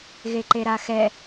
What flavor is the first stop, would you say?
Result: click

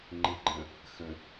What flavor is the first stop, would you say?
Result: click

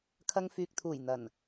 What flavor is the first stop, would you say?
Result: aspirated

